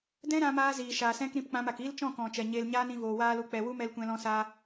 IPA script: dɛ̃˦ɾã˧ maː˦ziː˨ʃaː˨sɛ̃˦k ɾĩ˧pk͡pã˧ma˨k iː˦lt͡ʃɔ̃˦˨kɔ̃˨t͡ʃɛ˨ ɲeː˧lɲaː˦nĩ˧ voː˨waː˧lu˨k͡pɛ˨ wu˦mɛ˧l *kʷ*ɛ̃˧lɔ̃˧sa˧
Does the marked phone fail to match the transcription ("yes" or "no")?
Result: no